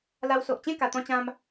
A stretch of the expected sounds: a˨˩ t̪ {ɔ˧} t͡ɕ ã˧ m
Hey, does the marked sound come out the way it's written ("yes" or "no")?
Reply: no